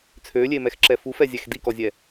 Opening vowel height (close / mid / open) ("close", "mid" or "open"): mid